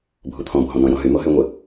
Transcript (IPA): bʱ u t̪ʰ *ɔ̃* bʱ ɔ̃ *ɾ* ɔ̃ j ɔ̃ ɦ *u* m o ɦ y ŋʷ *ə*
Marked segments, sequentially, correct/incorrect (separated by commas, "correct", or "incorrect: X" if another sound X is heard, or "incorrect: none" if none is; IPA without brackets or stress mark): correct, incorrect: n, incorrect: y, correct